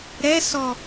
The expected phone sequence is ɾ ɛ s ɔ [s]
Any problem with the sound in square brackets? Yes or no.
yes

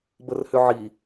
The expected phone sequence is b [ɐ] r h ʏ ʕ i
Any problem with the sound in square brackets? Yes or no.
yes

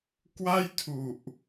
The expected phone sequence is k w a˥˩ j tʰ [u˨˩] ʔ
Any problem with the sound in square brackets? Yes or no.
no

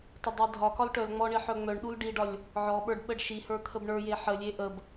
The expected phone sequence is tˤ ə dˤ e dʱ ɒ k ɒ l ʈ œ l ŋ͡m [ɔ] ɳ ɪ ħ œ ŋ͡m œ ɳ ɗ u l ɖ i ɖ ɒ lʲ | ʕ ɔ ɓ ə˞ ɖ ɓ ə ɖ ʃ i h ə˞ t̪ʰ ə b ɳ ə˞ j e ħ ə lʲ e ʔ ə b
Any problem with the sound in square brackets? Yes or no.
no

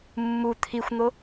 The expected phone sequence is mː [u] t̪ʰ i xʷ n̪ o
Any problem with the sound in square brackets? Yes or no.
no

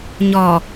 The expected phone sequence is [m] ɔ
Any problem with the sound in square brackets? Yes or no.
yes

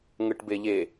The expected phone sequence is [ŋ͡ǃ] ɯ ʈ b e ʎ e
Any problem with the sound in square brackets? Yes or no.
yes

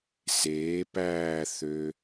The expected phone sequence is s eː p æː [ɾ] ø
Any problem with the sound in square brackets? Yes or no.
yes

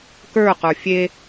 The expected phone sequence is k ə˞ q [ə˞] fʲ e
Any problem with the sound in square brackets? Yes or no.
no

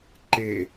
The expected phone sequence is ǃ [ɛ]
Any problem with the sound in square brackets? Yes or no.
yes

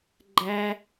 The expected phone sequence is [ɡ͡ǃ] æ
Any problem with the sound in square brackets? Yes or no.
no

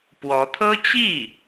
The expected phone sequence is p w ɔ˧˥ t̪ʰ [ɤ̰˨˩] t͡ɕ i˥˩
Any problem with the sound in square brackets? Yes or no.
yes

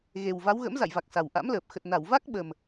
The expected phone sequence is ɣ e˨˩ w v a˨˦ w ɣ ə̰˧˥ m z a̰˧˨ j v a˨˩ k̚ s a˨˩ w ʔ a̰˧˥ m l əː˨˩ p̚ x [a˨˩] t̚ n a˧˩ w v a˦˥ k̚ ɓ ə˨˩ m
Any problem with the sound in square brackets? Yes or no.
yes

